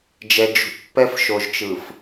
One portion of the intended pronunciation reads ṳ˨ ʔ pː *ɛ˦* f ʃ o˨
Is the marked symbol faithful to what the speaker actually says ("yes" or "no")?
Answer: yes